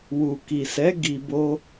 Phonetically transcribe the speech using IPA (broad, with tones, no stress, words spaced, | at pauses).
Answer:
wu˨ki˨sɛ˨˦ ɡi˧bo˦